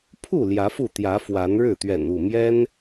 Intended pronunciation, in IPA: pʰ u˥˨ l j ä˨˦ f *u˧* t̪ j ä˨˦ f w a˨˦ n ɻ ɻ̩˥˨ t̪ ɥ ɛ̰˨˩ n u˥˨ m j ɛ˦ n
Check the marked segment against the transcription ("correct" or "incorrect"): incorrect